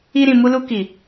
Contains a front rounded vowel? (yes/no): no